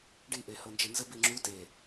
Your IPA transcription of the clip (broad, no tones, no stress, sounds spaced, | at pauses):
ɖ i ʔ e h ɤ n d͡ʒ e n z ə b i ŋ͡ǁ u t e